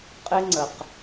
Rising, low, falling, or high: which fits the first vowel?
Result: high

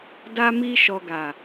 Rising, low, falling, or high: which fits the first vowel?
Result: high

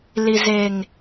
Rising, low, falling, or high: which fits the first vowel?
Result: low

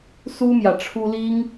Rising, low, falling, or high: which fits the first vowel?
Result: high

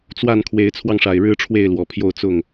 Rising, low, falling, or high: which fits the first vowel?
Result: falling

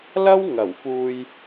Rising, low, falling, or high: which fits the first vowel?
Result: high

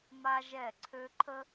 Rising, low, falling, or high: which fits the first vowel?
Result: high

